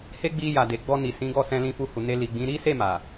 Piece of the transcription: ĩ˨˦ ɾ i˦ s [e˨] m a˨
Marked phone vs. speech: incorrect: e˦˨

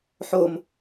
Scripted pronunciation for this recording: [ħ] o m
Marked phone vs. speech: correct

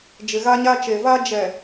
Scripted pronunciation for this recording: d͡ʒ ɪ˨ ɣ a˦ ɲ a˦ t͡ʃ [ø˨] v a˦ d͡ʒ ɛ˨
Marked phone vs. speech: incorrect: e˨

